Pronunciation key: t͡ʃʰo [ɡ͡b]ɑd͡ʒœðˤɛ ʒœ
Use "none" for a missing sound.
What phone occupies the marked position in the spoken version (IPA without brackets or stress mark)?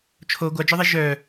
ɡʷ